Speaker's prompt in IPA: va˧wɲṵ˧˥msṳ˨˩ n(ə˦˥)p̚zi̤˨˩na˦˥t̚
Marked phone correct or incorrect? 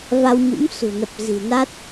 incorrect